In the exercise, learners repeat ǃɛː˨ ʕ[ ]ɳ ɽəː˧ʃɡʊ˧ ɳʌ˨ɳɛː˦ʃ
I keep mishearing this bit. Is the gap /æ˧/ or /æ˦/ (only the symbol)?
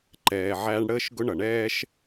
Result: æ˧